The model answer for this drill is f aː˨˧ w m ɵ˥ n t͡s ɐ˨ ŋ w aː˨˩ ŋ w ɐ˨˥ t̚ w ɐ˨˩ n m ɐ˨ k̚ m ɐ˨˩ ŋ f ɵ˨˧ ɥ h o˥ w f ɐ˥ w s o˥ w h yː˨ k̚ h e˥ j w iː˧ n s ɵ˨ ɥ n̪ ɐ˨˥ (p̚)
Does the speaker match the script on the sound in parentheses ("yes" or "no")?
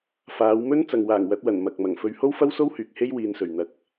no